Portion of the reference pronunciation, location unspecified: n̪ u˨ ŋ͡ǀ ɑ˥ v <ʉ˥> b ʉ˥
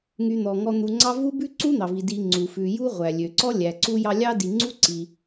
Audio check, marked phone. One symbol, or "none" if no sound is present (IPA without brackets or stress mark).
u˥